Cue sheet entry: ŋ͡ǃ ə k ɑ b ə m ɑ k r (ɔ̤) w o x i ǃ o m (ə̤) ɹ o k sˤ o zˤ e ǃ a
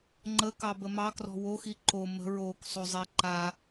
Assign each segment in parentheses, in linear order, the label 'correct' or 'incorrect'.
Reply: correct, correct

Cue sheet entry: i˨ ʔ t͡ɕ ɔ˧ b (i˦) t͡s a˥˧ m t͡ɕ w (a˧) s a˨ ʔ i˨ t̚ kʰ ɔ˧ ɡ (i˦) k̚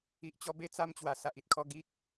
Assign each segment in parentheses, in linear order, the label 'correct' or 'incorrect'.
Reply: incorrect, incorrect, correct

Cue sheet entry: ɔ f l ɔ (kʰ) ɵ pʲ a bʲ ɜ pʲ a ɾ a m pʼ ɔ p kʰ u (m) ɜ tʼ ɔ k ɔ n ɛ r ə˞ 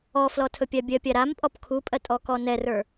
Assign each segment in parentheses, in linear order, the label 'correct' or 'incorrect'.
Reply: incorrect, incorrect

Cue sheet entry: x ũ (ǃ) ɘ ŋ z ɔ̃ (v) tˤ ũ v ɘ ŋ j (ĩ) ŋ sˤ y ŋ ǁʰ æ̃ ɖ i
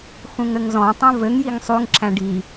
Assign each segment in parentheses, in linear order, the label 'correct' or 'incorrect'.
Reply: incorrect, incorrect, incorrect

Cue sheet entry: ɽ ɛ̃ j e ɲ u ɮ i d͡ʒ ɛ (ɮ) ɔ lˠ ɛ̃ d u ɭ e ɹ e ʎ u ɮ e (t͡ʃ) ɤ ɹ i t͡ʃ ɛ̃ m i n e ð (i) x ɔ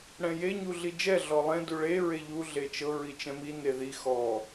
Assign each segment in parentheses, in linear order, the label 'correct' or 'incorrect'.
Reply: correct, correct, correct

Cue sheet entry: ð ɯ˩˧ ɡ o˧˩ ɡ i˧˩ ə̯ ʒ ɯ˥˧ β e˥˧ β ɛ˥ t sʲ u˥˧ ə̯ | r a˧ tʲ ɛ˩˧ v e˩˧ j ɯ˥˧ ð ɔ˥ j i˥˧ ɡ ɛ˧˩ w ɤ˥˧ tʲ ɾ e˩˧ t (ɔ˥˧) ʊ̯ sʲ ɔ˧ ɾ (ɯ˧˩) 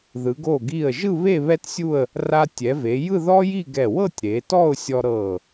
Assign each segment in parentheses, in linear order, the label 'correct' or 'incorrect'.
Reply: correct, incorrect

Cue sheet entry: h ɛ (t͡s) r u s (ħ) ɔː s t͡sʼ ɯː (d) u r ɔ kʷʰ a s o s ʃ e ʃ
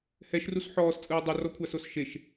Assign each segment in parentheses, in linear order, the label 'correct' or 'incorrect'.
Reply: incorrect, correct, incorrect

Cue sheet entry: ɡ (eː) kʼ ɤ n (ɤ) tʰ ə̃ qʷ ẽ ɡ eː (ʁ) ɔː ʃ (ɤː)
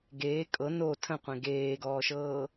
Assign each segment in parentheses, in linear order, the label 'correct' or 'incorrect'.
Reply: correct, incorrect, incorrect, correct

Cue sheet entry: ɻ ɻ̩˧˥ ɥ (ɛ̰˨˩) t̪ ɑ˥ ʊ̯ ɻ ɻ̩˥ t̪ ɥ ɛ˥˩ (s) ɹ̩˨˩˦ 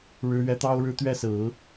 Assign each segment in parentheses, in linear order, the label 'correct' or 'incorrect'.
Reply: incorrect, correct

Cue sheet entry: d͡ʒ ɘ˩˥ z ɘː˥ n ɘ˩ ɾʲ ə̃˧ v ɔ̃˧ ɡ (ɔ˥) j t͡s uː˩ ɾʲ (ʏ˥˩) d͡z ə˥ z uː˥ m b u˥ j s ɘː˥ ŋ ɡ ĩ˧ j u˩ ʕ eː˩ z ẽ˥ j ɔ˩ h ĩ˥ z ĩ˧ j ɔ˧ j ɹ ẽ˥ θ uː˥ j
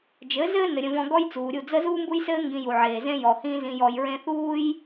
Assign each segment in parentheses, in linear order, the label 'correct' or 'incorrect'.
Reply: correct, incorrect

